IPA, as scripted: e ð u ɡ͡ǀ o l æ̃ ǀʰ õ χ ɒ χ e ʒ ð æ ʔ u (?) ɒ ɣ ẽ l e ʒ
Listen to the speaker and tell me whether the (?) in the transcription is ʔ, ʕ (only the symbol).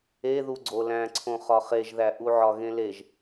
ʕ